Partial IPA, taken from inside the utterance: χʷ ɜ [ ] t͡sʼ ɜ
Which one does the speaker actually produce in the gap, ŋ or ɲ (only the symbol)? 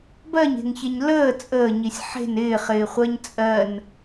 ɲ